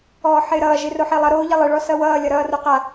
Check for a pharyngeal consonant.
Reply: present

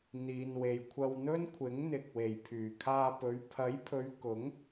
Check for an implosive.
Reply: absent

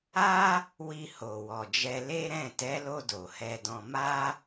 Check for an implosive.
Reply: absent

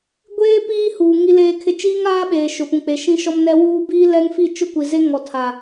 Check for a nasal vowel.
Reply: present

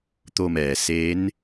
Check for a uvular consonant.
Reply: absent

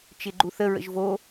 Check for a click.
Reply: present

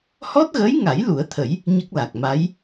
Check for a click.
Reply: absent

